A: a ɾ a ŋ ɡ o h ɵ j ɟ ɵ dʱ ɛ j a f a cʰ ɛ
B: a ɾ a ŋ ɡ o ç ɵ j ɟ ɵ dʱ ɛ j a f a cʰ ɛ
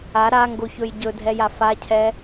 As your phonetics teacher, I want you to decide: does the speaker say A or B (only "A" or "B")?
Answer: B